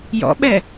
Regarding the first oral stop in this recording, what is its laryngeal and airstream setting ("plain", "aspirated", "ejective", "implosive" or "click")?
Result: implosive